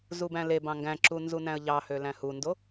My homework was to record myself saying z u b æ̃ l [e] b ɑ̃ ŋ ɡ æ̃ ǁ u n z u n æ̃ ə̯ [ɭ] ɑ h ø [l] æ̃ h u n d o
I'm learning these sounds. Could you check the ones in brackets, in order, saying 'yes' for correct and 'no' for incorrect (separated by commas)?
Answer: yes, no, yes